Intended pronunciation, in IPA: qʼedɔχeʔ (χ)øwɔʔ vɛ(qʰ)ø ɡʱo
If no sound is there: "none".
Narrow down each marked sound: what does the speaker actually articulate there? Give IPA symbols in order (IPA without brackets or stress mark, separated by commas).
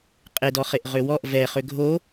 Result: ʁ, χ